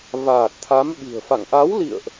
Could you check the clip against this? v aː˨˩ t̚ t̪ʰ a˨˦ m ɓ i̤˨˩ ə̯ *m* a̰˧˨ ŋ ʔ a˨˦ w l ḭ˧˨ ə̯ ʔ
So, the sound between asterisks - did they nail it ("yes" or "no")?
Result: no